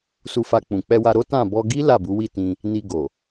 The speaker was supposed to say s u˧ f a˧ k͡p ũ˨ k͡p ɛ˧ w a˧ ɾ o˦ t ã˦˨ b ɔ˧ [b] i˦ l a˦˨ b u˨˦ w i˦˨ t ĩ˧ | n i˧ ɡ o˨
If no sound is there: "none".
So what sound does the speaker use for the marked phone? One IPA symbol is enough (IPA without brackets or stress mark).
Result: ɡ